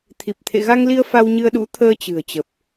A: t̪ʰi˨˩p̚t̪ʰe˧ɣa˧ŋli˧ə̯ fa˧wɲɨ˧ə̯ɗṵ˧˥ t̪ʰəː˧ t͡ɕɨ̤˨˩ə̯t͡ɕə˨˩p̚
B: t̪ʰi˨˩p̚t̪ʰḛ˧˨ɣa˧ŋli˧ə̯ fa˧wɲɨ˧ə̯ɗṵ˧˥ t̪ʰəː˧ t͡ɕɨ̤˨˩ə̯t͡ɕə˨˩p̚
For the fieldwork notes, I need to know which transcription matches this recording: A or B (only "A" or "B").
B